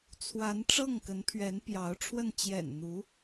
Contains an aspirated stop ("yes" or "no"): yes